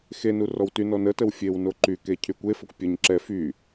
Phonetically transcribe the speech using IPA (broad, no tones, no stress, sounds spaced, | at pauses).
x e n u r ɔ w t y n ɔ n ə t ə w fʲ e w n o ǃ y k e cʰ y kʷ e f ə kʷ pʲ ə ɲ ǁ ɛ f y